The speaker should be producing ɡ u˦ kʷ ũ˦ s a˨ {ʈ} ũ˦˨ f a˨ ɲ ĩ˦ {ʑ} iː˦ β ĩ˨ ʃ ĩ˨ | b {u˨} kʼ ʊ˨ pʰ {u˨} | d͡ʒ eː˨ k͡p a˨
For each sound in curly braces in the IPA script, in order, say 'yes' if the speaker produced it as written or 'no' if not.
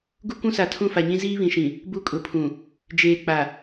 no, no, no, no

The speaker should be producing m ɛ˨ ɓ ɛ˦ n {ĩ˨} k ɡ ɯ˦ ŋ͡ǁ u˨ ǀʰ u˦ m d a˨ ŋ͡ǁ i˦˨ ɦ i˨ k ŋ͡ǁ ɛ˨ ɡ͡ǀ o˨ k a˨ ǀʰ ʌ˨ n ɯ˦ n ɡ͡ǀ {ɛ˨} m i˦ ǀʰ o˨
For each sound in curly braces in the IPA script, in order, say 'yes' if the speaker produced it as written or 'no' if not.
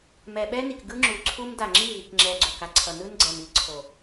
no, yes

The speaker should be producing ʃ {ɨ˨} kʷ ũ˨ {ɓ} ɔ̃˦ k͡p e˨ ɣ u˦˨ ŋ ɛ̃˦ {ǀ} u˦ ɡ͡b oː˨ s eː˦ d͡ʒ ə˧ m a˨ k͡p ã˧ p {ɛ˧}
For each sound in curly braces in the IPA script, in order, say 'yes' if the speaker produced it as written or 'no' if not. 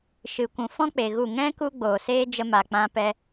yes, no, no, yes

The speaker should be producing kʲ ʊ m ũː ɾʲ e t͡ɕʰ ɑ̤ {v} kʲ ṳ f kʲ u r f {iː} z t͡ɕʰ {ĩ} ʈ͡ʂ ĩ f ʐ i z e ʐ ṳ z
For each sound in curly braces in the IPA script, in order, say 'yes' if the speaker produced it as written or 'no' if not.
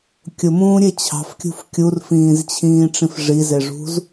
no, no, no

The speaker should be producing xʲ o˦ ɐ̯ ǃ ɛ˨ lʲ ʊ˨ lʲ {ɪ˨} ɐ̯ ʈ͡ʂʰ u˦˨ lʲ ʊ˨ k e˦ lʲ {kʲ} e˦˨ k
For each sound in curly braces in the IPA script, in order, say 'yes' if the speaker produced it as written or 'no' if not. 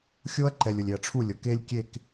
yes, yes

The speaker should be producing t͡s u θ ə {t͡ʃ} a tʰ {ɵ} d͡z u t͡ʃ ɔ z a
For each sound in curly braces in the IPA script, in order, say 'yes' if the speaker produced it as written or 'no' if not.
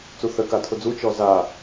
no, no

